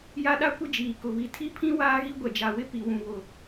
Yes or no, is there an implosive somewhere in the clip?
yes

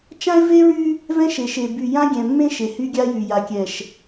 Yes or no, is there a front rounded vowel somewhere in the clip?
yes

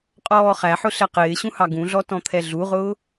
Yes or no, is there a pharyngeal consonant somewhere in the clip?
yes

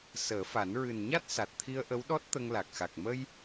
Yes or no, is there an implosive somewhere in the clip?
yes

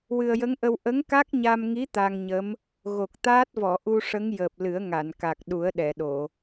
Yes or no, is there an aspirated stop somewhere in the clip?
no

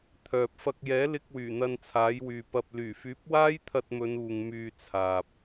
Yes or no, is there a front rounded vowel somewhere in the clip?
yes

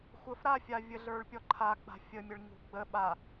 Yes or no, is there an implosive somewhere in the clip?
yes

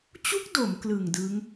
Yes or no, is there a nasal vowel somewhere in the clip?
no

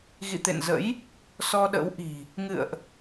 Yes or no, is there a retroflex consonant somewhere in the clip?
no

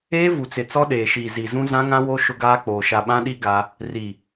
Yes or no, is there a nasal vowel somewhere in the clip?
yes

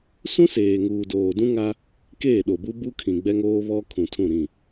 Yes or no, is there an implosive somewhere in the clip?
yes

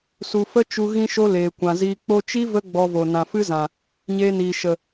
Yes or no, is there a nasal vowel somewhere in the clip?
yes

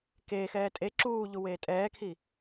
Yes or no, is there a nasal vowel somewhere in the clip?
no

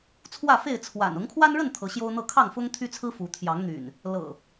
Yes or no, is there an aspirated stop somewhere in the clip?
yes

